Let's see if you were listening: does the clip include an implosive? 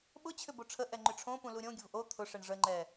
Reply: yes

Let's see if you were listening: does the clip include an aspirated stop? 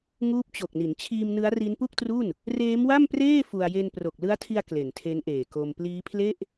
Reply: yes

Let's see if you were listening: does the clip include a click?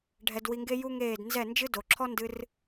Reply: yes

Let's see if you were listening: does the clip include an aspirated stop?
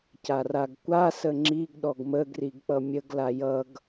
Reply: no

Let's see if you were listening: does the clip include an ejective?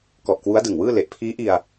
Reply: no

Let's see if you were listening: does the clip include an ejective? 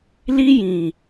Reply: no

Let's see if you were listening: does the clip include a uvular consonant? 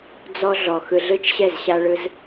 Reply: no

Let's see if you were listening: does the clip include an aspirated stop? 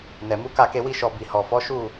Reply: no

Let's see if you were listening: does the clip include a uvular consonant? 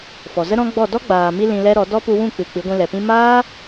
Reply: no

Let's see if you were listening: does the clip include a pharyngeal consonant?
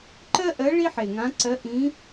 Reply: yes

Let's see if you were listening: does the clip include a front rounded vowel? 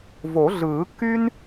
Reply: yes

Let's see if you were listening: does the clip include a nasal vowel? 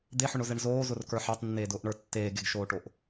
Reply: no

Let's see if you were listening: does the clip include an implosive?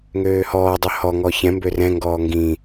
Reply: no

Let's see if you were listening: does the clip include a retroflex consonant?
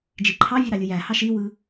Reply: no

